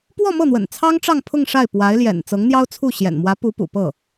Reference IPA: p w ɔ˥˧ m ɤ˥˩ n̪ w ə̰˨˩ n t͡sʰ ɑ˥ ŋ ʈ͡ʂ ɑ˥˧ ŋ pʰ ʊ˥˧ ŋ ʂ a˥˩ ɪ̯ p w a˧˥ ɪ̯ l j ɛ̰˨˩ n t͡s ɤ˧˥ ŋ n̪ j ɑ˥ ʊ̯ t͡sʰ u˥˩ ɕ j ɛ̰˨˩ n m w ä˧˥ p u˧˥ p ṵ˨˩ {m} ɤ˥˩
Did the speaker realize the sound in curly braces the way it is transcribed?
no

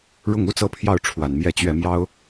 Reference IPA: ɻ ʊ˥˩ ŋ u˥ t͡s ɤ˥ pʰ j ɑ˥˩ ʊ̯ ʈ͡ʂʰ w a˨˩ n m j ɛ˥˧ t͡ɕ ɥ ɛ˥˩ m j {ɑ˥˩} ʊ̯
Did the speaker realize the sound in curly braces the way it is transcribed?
no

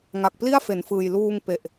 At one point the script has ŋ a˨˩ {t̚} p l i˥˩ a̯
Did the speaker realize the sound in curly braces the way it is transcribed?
no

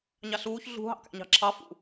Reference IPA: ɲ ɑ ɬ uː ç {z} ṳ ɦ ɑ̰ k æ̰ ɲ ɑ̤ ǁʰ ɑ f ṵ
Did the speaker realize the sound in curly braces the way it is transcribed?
no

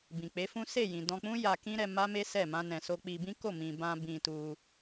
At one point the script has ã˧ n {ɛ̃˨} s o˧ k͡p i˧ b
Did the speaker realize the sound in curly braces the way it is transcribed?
yes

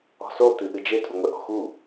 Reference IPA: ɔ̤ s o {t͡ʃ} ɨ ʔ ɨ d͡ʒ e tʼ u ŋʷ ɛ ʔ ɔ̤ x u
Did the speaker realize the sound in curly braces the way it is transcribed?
no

